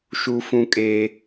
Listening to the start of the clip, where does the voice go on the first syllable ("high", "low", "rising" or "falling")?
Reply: high